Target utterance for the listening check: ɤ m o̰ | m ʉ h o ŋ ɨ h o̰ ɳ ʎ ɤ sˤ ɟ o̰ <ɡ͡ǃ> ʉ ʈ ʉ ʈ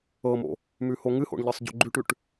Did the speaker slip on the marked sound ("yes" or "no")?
no